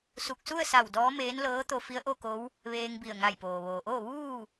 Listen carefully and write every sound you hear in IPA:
s u˧˩ k̚ s u˥˨ ə̯ s a˧˩ w d ɔː˧˥ m eː˧˥ n l ɤː˧˥ t̪ o˧ f i˧˥ ə̯ ʔ o˥˨ k o˧˥ w | ʋ eː˧ ŋ b i˧˩ ə̯ ŋ a˧˩ j p oː˩ ʋ oː˩ ʔ o˥˨ ʋ uː˥˨

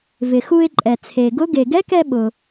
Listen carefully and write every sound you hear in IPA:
v ɪ˩ x u˧ ɪ̯ ǃʼ ɛ˩ t͡sʰ e˩ ɡ ʊ˧˥ ɡ e˩ ɡ ɛ˧˥ k ɛ˧ ɓ ʊ˩

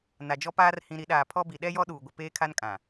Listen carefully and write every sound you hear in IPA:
n a˨ d͡ʒ ɔ˦ p aː˦ r h ĩ˨ ɾ i˨˦ ɗ aː˨ pʰ ɔ˦ b i˨ ɗ ɛ˦ j ɔ˦ ɗ uː˨ ɡʷ ɪ˨ p eː˦ kʰ a˦ n kʼ ã˨

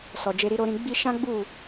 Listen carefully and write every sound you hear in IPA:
s ɔ˨ d͡ʒ e˧ ɾ i˧ ɾ o˧ ɾ ĩ˧ ɡ͡b i˧ ʃ ã˦ ɡ͡b u˦˨

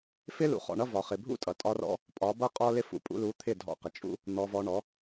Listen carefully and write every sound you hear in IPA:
f ɪ˦ l ṵ˧ χ ɔ̰˧ ɳ ʌ˦ v ɒ˨ χ ɪ˨ bʱ ṵ˦ tʼ ʌ˨ tʼ ɒ˧ r ɔ̰˧ | pʼ ɒ˨˦ b ʌ˦ qʼ ɔ˦ l ɪ˦ f ṵ˧ pʼ ṵ˧ l u˨˦ t̪ʰ ɪ˦˨ dʱ ɔ̰˧ q ɪ˨ t͡ʃʼ ṵ˧ | n̪ ɔ˧ v ɔ˧ ɳ ɔ˨˦

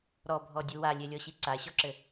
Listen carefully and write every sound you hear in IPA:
ɾ ɔ bʱ ɔ dʲ u w a lʲ e lʲ ɔ ɕ i ǀ a ɕ ɔ ǁ ɘ

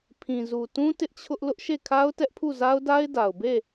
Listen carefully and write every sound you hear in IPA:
pʰ ĩ˨ z u˨ t ũ˦ t ɪ˦ ʔ t͡ɕʰ ʊ˦ ʔ l ʊ˦ ʔ ʃ e˦˨ kʰ a˦ ʊ̯ t ɛ˦ ʔ pʰ u˦˨ z a˦ ʊ̯ d a˦ ɪ̯ d a˨ ʊ̯ b e˦˨

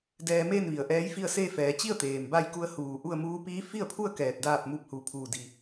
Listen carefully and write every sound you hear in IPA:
d ɛː˧ m eː˥˨ n ʋ i˩ ə̯ ʔ ɛː˧˥ j f i˥˨ ə̯ s eː˥˨ f ɛː˩˧ t͡ɕ i˥˨ ə̯ t̪ eː˩ m b a˧ j k u˧˥ ə̯ h uː˧˩ ʔ u˥˨ ə̯ m uː˧˥ p iː˧˥ f i˥˨ ə̯ pʰ u˥˨ ə̯ k ɛː˧˩ t̚ d aː˥˨ p̚ m u˧˥ p̚ h u˧˩ pʰ uː˧˩ d i˧˩

